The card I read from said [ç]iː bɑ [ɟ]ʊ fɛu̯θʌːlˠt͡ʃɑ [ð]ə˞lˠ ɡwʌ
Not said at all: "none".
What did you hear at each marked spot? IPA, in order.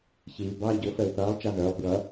ç, ɟ, ð

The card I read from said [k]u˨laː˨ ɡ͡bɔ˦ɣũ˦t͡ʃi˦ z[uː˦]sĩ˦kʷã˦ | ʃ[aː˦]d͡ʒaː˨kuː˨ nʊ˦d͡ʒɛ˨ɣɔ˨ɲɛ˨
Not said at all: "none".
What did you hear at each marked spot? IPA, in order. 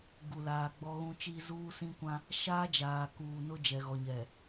ɡ, uː˦, aː˦

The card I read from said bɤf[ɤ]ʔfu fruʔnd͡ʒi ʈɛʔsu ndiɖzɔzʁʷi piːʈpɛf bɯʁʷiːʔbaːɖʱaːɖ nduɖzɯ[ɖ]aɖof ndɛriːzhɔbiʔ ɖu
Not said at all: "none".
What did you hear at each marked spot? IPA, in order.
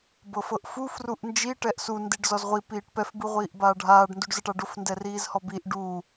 ɤ, ʈ

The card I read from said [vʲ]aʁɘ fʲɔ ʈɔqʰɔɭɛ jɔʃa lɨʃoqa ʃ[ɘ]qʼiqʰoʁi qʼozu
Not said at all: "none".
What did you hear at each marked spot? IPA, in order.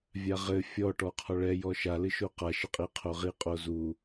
vʲ, ɘ

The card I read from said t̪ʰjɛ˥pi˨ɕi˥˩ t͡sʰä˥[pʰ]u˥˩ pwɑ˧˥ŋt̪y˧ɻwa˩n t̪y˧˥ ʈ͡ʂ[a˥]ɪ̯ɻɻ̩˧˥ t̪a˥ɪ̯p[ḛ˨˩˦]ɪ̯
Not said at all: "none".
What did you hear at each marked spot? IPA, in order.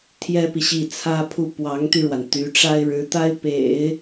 pʰ, a˥, ḛ˨˩˦

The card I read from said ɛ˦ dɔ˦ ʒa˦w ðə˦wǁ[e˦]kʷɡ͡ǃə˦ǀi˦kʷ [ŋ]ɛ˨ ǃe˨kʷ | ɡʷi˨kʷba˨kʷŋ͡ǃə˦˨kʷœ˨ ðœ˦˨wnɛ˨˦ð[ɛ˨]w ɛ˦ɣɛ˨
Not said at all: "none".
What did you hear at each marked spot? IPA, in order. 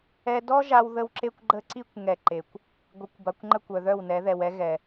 e˦, ŋ, ɛ˨

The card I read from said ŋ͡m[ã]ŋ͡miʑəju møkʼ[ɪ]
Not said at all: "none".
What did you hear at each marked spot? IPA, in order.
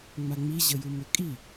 a, i

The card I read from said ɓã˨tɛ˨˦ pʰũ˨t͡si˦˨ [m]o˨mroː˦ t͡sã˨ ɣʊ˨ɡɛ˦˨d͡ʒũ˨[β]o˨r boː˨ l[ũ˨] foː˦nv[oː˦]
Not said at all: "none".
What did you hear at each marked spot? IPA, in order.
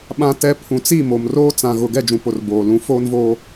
m, p, ũ˨˦, oː˦

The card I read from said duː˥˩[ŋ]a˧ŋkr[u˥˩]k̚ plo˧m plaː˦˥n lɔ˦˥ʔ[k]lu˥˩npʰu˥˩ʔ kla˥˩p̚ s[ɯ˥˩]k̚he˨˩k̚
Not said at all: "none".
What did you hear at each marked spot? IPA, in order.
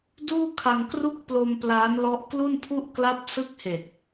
kʰ, u˥˩, k, ɯ˥˩

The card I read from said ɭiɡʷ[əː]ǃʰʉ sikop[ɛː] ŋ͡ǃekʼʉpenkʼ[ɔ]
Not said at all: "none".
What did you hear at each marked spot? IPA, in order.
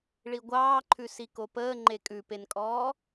ɑː, əː, ɔː

